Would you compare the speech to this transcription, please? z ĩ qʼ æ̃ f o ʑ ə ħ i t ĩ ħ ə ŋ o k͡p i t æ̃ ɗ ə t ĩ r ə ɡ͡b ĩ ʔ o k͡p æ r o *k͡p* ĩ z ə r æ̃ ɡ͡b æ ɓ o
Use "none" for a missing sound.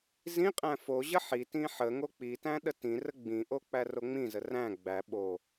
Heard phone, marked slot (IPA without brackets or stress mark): ŋ͡m